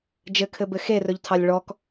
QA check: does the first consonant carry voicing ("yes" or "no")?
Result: yes